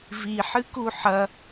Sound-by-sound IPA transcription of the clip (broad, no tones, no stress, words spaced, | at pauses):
vi ħɨkuħɐ